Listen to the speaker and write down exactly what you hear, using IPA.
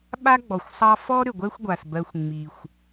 ɓa˥ɡ͡bɔ˩xʷsˤɑ˦ fɔ˥ ɾʏ˩ɡʷɛ˦xʷɡʷa˩s bɜ˨xʷŋ͡mi˩xʷ

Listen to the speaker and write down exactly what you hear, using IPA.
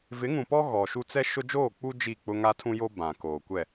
vɪ˨˦ŋũ˨pɔ˦ ɣɔ˨ʃu˦ t͡sɛ˦ʃʊ˦ d͡ʒoː˦˨k͡pu˦ d͡ʒi˦˨k͡pʊ˦ ŋa˦tʰũ˦jo˦bã˨ koː˨kʷɛ˦˨

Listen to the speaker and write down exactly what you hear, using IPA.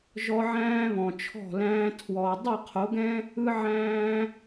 ʒɔ˧ ʕæ̃ː˦βɔ̃˨t͡ʃʰɔ̤˦˨læ̃ː˦ tʰwɔ˧ dˤɯ˦˨qʰo˨˦ɡɛ̃˦ | ɯ˦ʕæ̃ː˦

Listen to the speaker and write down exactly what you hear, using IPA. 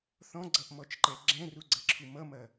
θɔ̃ɡ͡ǀʌʔmɔt͡ʃǃɛ ɡ͡ǁɛ̃ruɡ͡ǀʌǁʰu mʌmɐ

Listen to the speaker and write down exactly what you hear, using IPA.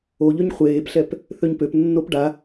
o ʎøɲχʷeːpɬɛp | θøɲpøpnːop ɖa

